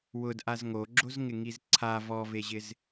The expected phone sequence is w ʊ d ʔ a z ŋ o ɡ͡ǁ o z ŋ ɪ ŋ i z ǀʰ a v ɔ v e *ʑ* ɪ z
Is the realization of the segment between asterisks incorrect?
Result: no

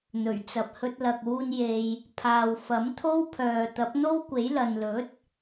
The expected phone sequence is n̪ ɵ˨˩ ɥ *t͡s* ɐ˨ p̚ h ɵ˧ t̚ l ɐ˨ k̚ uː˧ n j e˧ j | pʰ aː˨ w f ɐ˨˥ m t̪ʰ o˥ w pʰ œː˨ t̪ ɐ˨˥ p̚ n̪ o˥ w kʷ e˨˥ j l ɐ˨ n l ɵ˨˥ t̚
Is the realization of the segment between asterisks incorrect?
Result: no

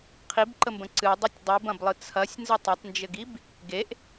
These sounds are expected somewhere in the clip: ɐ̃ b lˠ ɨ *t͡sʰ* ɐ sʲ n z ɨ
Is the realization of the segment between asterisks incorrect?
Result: no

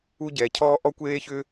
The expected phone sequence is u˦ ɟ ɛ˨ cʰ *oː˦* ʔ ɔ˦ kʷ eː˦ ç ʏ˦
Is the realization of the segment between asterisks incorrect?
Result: yes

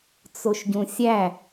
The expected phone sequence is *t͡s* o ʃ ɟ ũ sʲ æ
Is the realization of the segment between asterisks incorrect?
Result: no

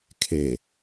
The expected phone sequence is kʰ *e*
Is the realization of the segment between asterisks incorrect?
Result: no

